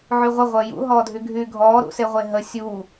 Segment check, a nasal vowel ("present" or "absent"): absent